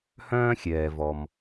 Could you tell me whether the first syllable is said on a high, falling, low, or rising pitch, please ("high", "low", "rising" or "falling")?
high